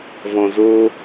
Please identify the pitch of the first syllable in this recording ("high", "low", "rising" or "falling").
low